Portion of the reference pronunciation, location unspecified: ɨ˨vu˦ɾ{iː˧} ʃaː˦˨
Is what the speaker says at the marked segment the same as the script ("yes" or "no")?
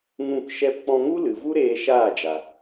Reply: no